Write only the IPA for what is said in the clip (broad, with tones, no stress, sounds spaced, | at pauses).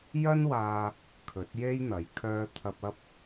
j ɐ˥ n w aː˧ | kʰ ɵ˨˥ t̚ j e˥ j n̪ ɐ˨˥ j kʰ œː˧ t̪ʰ ɐ˧ p̚ ɐ˥ p̚